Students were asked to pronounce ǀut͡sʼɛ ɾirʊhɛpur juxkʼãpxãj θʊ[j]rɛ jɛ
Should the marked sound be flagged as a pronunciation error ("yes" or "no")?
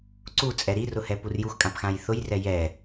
no